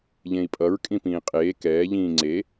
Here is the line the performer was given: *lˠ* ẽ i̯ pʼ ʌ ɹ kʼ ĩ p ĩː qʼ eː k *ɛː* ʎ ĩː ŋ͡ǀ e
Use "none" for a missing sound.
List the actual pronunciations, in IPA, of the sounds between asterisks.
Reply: ʎ, ɛː

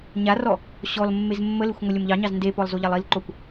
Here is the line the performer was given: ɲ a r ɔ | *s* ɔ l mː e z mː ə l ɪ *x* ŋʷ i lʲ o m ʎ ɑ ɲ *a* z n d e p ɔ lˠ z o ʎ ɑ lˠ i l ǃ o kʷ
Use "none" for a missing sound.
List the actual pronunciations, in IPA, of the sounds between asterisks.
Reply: ɕ, xʷ, ɑ

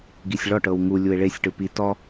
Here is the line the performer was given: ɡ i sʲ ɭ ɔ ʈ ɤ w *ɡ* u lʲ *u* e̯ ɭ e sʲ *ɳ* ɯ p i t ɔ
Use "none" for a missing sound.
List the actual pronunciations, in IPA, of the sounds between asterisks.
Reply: ŋ, u, ʈ

